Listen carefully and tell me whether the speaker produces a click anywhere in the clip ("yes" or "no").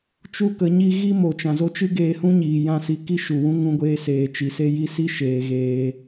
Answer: no